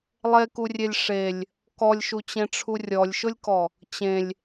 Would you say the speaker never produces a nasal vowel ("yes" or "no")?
no